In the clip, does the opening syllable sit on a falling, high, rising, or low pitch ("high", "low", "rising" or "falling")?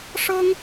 high